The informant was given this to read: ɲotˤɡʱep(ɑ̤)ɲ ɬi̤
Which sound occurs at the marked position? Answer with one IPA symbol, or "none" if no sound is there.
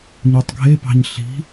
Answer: ɑ̤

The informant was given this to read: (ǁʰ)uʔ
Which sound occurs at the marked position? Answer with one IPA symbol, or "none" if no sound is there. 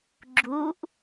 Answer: ɡ͡ǁ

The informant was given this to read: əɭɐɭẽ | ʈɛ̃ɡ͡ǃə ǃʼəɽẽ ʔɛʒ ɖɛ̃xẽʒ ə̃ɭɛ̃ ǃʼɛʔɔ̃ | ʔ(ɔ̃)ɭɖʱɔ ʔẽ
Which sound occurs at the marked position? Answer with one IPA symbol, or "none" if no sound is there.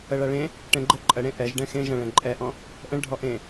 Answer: ə̃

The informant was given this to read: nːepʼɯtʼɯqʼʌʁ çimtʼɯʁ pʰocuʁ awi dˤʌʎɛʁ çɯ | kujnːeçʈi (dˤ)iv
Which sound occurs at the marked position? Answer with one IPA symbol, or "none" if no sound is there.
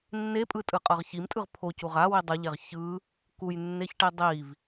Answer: dˤ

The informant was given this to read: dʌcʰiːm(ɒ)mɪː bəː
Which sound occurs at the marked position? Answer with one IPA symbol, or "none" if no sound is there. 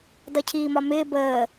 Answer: ɒ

